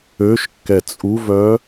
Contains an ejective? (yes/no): yes